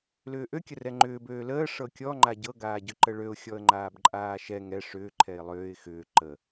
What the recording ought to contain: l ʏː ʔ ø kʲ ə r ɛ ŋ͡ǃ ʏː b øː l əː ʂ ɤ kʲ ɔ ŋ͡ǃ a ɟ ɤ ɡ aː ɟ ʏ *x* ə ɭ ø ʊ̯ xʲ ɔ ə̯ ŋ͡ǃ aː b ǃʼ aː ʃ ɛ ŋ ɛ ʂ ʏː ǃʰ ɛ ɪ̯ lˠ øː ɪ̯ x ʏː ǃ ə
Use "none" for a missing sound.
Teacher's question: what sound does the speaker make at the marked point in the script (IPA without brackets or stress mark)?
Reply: ǃ